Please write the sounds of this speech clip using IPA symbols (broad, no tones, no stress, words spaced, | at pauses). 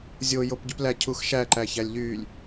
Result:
zʲo jopɟyplæ cʰuxʃæ ǃæçælʲʎylʲ